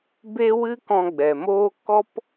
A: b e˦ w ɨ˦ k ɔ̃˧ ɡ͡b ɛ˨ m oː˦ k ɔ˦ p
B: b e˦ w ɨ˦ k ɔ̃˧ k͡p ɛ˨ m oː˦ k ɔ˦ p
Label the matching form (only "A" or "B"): A